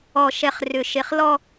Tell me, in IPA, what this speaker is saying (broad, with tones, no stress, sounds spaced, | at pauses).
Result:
ɔ˨ ʃ ɛ˨ χ r ʏ˨ ʃ e˨ χ l ɔ˦